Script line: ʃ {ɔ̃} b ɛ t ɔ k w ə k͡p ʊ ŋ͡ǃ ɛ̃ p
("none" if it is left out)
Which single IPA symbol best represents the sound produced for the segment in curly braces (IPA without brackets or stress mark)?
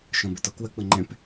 ɔ̃